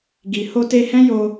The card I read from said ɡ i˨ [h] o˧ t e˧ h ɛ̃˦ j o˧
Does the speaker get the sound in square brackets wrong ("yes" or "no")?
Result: no